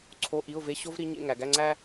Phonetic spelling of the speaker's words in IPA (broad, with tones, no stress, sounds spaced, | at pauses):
ǀʰ o˧˥˧ ʔ i˧˥˧ ʊ̯ v e˧˥˧ ɕ o˥ v ɾ i˧˥ ɲ ḛ˧˥˧ ŋ æ˩˧ ɡ æ˧˥˧ ŋ͡ǀ æ˥